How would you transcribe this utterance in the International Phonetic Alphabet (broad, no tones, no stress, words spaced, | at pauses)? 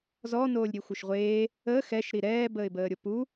zɔnoːlʲɾʲe xʷœʃʁʷeː | əː xɛʃɾi ɾɛːbəːɪ̯bəːɾʲo pu